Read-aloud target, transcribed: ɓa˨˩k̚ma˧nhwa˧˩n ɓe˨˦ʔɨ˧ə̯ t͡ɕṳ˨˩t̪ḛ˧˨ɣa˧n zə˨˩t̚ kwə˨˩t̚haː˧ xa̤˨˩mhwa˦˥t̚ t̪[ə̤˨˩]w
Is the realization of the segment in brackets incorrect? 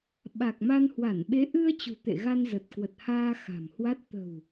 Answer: no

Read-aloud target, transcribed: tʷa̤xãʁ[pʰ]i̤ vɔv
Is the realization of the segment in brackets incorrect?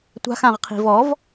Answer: yes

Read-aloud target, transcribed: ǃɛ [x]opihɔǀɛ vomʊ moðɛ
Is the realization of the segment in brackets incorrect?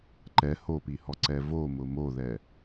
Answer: yes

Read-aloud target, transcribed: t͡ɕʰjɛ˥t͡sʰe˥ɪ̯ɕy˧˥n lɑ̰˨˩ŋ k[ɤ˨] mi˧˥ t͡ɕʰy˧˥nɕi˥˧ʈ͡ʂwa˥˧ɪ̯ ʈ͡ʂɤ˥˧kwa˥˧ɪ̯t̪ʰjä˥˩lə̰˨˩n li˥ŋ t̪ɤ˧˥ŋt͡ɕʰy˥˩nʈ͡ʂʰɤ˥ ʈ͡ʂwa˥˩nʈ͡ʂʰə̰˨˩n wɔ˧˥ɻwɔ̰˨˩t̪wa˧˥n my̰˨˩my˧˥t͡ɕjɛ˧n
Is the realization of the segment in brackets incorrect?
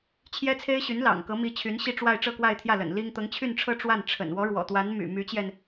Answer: yes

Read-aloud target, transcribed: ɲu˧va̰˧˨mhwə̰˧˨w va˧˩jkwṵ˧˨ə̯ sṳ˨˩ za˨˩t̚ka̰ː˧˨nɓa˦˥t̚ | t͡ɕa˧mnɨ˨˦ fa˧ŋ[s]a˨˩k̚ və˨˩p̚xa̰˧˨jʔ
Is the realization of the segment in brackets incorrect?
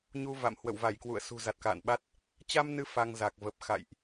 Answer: yes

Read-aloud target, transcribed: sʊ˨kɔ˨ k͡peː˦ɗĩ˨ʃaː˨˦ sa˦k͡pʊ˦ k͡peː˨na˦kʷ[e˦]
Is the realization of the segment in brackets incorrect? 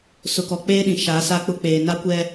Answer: yes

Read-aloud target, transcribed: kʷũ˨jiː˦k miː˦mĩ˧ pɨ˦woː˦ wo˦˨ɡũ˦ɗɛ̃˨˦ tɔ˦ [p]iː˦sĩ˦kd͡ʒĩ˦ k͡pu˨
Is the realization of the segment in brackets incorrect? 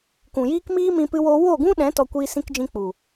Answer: yes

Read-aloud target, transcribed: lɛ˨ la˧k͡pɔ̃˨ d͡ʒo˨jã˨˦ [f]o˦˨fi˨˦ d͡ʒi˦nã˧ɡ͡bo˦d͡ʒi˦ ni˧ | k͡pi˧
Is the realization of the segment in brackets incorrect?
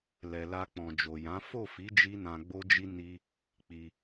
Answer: no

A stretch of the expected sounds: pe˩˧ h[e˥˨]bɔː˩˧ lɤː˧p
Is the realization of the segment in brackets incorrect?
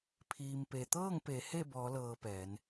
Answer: no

